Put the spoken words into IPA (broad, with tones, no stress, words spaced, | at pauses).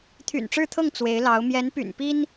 t̪ʰy̰˨˩nʈ͡ʂɻ̩˥˧t̪ʰɤ˥˩ŋ t͡swe˧˥ɪ̯lɑ˧˥ʊ̯ mjɛ˧˥npy̰˨˩npi˥n